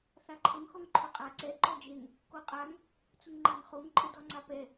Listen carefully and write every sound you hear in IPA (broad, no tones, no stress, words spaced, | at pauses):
θaǃʰəŋ xɔŋǃʰʊqʼa ǀɛ ǃɔd͡ʒeŋ | koqʼaŋ | t͡sʊŋŋ͡ǃaŋχoŋ ǃʼədɔŋ͡ǀapɛ